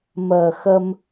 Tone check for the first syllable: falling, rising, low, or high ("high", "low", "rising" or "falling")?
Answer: low